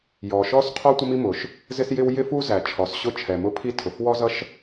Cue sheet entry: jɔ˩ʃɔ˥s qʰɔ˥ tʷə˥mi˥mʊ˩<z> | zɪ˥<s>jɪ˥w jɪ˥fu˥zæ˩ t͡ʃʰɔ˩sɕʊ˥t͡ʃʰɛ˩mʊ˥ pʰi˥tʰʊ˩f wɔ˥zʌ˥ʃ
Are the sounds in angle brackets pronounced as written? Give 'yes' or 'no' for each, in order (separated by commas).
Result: no, yes